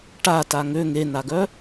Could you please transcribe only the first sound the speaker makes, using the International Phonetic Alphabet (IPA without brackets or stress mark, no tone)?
ʈ